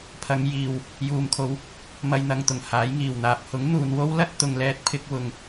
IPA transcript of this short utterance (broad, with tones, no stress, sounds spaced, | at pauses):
pʰ ɐ˨˧ ŋ j iː˨ w | j uː˨ m kʰ o˨˧ w | m ɐ˧ j n̪ ɐ˨ ŋ t̪ ʊ˨˩ ŋ h aː˨˥ j ŋ iː˨˩ w n̪ aː˨ p̚ h ʊ˨˥ ŋ n̪ uː˨ n w o˥ w l ɐ˥ t̚ t̪ ʊ˨ ŋ l ɛː˧ t̚ pʰ ɪ˧ k̚ w ʊ˨˩ ŋ